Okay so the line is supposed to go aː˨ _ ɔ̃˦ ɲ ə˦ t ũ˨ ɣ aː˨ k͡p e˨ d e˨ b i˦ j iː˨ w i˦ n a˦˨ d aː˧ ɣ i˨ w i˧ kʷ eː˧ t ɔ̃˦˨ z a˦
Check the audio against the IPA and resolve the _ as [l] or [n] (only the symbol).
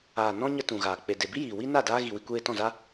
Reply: n